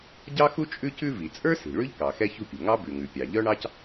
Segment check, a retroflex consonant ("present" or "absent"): present